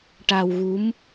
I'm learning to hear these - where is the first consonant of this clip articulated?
retroflex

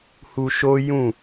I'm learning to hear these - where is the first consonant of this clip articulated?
throat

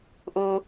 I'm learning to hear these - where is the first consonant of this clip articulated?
throat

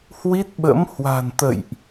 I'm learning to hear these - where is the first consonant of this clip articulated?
throat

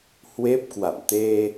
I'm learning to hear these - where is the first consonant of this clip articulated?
throat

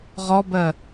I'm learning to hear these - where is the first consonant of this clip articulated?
uvula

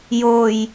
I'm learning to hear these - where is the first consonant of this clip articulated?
palate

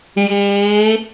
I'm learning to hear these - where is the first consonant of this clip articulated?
palate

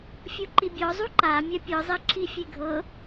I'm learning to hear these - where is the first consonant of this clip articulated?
lips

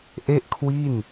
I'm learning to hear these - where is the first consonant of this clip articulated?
throat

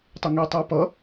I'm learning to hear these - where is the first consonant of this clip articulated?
tongue tip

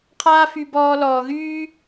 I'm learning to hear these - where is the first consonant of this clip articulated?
uvula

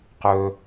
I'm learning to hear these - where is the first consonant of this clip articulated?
uvula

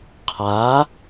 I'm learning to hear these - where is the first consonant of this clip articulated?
uvula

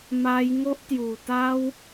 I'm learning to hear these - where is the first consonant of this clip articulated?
lips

